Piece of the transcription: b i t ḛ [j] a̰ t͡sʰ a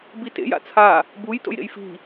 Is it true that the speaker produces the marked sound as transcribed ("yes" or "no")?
yes